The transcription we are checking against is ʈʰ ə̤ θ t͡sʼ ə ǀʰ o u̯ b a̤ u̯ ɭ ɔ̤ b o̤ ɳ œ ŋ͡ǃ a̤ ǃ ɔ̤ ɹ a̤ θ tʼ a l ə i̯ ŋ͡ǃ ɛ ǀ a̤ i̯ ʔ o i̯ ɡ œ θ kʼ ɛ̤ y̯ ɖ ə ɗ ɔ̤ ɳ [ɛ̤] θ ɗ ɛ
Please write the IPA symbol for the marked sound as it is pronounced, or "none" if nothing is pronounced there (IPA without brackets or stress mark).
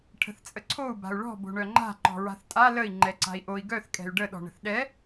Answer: ə̤